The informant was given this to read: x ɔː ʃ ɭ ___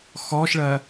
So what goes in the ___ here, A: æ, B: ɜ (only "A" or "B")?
B